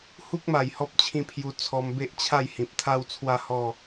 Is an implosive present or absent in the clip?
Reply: absent